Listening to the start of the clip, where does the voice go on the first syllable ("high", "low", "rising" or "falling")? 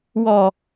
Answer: low